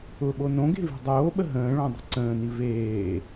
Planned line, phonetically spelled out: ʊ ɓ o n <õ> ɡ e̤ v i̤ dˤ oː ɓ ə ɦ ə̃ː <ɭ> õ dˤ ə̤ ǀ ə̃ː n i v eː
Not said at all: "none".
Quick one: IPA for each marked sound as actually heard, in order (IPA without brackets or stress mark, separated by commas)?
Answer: õ, ɭ